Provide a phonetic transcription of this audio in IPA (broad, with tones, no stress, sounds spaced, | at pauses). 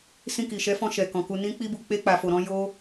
s ĩ˧ k i˨ ʃ ɛ˨˦ f ɔ̃˧ ʃ ɛ˨ k ɔ̃˨ k u˧ n ĩ˦ k͡p i˦ b u˧ k͡p e˧ k͡p a˨ f o˨ ɾ ɔ̃˧ j o˦